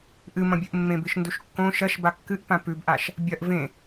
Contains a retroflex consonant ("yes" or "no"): no